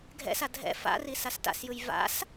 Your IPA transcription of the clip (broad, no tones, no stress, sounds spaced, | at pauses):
ɡʱ ɛ̰ s a dʱ ɛ̰ f a̰ r i s a s t a̰ s j ɯ j v a̰ s